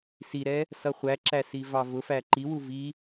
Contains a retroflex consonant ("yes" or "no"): no